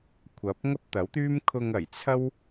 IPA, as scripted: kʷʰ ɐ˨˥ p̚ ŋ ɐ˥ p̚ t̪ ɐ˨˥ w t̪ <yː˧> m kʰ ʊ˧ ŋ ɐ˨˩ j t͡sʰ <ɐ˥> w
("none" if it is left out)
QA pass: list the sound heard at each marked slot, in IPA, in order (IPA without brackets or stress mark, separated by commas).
yː˥, ɐ˥